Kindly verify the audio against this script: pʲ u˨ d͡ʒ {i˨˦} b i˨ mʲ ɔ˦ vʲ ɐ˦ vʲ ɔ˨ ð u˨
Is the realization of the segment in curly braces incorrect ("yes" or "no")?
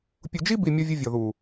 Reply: yes